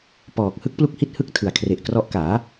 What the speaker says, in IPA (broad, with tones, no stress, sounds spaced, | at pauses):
p ɔː˨˩ k̚ h ɯ˦˥ k̚ p l u˦˥ k̚ h i˦˥ t̚ h ɯ˥˩ k̚ tʰ ɯ˨˩ a̯ kʰ r e˨˩ ʔ k r ɔ˦˥ ʔ k aː˩˦